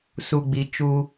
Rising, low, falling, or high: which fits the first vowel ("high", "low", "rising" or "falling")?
low